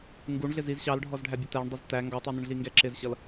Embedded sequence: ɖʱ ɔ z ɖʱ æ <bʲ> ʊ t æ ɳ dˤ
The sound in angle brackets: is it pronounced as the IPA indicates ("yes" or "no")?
yes